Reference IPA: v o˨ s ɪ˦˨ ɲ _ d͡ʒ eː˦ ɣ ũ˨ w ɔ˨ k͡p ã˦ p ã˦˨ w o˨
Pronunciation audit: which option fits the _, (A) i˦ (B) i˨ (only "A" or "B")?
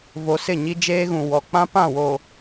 A